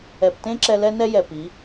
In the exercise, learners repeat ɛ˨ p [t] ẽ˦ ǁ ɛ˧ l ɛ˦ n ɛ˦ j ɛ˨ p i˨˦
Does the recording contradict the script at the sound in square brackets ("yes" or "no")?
no